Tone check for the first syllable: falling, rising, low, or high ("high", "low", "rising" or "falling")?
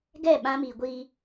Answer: falling